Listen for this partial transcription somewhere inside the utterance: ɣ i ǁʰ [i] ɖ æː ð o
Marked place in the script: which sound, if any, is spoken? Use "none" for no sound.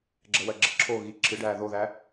ɨ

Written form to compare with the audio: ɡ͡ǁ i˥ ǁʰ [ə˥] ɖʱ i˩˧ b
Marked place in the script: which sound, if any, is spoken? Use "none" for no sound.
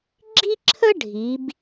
ə˥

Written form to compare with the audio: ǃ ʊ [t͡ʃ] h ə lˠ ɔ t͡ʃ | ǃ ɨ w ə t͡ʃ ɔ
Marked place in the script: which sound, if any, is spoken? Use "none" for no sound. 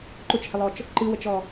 t͡ʃ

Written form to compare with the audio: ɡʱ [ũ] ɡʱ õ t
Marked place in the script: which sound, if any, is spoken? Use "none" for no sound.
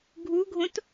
u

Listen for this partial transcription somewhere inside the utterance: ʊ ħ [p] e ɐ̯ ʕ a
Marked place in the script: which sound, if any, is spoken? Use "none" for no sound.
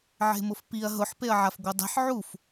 p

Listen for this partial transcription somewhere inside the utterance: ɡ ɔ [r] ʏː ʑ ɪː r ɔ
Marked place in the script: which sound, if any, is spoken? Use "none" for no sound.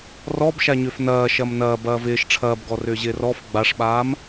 r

